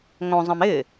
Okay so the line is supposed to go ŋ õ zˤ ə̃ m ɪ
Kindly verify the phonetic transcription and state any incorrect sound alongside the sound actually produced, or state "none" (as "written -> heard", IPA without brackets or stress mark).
none